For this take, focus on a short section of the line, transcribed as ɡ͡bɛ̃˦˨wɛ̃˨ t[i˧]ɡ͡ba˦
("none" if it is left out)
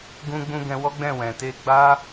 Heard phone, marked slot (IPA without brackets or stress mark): e˧